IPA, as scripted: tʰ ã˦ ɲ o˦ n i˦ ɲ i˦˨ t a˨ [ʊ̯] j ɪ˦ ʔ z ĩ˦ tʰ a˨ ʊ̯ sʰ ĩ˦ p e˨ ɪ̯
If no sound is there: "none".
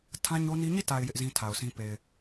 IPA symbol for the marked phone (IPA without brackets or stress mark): ɪ̯